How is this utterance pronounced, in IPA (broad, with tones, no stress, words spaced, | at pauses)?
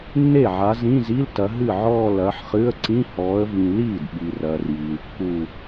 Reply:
nːe˥˩ʕa˨˦zĩ˧˥˧zi˧˥˧l tɐ˨˦ɦɨ˥˩ʕɔː˥˧ lɐː˨˦ħχɨ˧˥˧ə̯ ǀĩ˧˥˧hɔː˨˦ə̯vĩ˨ liː˥˩dɓi˨rɐː˨r jiː˨lkːu˥˧